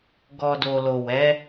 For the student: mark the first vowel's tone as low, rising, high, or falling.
low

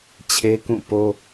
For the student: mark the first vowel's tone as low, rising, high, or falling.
high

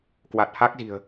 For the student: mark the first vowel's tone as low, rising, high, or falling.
low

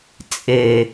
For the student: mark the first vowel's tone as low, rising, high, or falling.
low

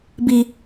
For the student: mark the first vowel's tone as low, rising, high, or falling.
high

